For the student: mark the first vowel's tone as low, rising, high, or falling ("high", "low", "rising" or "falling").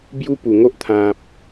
high